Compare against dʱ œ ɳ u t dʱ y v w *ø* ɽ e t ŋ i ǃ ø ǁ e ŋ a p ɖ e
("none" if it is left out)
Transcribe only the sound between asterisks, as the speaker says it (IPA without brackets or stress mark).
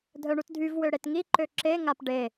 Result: ø